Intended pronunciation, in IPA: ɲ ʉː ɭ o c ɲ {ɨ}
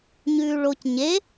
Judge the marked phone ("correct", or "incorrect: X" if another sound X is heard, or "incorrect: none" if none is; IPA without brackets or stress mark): incorrect: e